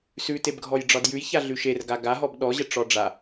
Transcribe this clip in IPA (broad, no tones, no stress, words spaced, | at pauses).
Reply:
sʉtebɡʱɔjɖ͡ʐɒd jʉjçaɮʉ ʃerɡa ɡaɦɔb ɗɔʑəʈ͡ʂɔ ɖ͡ʐa